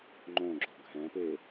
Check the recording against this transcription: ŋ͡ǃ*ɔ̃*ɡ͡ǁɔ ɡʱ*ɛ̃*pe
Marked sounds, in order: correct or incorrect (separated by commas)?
incorrect, correct